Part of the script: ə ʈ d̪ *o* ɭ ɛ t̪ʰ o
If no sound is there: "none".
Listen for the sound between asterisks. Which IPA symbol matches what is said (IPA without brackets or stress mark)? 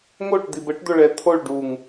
o